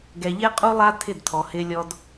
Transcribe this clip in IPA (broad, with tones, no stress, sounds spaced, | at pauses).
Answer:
ɡ ɛ˨ ʎ ɛ˦ qʼ u˦ lˠ a˦ tʰ ɪ˦˨ d tʰ ɔ˨ h ɪː˦ lʲ ɔ˦ d